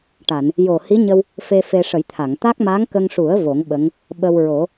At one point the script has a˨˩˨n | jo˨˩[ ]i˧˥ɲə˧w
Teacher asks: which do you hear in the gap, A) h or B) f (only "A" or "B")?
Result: A